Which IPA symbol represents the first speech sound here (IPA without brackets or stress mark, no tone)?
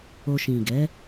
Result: o